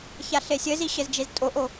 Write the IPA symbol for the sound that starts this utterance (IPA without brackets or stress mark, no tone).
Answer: ç